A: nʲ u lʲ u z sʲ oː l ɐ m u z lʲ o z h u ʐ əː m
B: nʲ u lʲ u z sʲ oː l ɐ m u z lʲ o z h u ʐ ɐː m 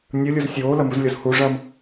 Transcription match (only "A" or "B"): B